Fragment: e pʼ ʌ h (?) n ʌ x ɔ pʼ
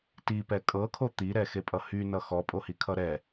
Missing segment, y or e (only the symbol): y